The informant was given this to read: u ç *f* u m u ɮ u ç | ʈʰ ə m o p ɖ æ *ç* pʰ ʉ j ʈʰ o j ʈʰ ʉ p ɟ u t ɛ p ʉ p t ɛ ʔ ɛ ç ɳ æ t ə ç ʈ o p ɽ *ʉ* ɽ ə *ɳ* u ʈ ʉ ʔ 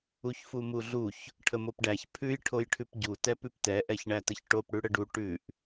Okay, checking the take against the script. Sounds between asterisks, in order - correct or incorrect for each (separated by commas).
correct, correct, correct, incorrect